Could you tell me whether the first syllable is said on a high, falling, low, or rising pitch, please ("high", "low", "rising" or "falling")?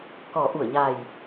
low